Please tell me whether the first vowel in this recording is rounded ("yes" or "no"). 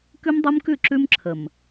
yes